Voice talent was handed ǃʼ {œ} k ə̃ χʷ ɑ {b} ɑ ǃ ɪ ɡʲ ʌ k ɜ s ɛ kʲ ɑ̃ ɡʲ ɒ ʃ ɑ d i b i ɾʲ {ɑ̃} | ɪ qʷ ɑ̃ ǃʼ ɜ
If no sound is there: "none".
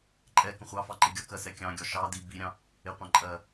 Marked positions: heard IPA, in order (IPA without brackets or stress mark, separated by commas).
ɛ, f, ɑ̃